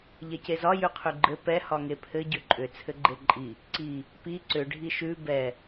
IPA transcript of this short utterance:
ʎ ɛ c e z ɒ j ʉ qʰ ʉ ɡ͡ǃ ɘ p ɛ h ɒ ŋ e pʰ ɘ ɟ ʏ ǃʼ ʏ t͡sʰ ɘ ɡ͡ǃ e ǃʼ i | ǀ i | p i ǀ ʏ ɖʱ i ʃ ʉ b ɛ

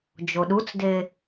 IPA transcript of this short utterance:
d͡ʒ o ɗ u t͡s d e

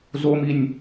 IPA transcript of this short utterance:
z o m i nʲ

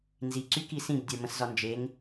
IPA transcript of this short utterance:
n z i ǀ y k i s ĩ b dʲ ə˞ m ə̃ s z ɒ n d͡ʒ e ŋ

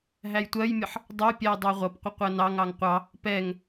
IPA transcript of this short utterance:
ɦ æ j tʷ ɜ j mʲ ʌ ħ | dˤ ɜ pʲ æ j dˤ ɑ ʁʷ ʌ p qʷ ə qʷ ɜ n ɑ ŋ ɑ ŋ qʷ ɑ | p ɛ ŋ

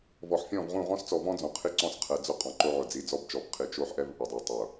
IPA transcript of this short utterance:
v ɔ˨ ħ fʲ ɔ̃˦˨ v ʁ ũ˦˨ ʁ ɔ̃˦ s t͡s ɔ˨ v ɔ̃˦ d͡z ɔ̃˨ qʰ i˦ ǀ ɔ̃˦˨ s qʰ ɛ˨ d͡z ʊ˦˨ qʼ ɔ̃˨ ǃ o˦ ʕ ʊ˨ d͡z i˨ d͡z ɔ˦ b t͡ʃ ɔ˨ b qʰ i˨ t͡ʃ o˦ ħ ʔ ɛ˦ v ʔ ʊ˨ dˤ o˨ tˤ ʊ˨

